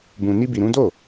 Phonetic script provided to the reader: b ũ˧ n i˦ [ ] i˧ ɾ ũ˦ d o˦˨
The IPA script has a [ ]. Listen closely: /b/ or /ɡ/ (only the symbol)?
b